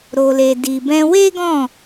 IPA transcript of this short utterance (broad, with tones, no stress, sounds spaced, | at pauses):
ɾ o˨ l e˨ d i˨ b ɛ̃˧ w e˦ ɡ ɔ̃˦˨